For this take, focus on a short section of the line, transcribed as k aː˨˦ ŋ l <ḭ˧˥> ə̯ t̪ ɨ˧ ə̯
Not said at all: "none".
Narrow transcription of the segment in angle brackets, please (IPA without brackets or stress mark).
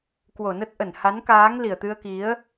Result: i˨˩